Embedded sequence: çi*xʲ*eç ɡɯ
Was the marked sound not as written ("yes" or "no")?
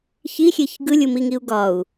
no